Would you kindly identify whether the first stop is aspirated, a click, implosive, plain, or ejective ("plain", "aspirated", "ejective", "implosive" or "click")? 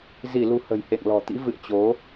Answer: plain